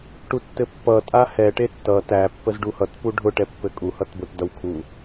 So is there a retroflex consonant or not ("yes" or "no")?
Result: yes